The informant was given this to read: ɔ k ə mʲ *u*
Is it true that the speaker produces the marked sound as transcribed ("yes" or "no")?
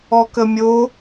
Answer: no